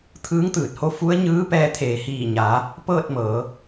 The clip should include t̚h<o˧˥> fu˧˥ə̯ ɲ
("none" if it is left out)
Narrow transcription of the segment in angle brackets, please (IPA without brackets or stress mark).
o˧˥